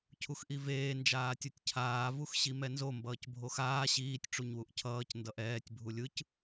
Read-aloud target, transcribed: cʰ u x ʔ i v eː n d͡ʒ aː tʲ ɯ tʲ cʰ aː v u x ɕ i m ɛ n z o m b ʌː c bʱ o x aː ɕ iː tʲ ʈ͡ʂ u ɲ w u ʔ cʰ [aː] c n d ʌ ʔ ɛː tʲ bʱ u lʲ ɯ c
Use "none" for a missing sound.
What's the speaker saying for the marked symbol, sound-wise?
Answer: ʌː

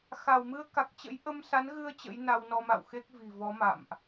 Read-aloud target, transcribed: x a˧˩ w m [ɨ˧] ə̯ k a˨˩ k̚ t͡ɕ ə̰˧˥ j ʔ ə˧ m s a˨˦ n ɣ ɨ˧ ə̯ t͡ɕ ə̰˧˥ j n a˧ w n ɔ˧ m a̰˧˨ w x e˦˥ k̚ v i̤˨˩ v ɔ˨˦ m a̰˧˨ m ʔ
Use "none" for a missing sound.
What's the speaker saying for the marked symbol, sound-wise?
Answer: ɨ˧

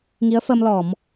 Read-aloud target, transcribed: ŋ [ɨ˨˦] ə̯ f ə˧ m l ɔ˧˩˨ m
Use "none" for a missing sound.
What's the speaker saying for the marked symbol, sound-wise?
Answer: i˨˦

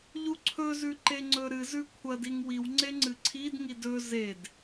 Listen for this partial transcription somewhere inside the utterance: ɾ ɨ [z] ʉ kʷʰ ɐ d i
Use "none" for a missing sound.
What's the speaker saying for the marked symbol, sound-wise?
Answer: z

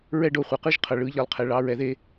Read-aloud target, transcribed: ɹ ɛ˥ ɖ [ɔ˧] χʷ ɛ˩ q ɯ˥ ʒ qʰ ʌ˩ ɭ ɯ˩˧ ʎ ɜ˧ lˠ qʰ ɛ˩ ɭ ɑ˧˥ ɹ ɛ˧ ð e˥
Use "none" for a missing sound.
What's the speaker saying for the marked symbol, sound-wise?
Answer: o˧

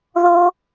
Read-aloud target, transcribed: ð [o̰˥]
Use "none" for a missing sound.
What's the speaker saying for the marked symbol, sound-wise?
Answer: o˥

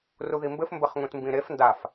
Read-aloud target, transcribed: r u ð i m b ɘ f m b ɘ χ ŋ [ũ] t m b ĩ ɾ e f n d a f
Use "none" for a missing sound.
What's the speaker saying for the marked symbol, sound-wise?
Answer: ũ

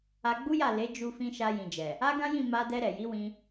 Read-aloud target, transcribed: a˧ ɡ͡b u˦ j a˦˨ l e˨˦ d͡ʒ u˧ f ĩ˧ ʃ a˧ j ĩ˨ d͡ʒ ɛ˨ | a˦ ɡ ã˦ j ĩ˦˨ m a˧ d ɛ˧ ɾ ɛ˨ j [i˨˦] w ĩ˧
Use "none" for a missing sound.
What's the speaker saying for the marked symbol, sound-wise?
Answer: i˨˦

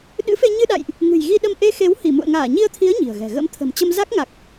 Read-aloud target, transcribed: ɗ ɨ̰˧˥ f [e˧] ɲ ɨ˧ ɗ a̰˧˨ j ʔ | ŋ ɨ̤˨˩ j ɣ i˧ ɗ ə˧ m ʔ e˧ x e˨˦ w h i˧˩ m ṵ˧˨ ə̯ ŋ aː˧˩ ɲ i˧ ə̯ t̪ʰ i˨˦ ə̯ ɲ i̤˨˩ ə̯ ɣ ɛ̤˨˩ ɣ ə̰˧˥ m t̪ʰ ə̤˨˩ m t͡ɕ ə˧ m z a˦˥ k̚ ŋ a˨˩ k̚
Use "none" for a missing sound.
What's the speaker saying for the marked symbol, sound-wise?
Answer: e˧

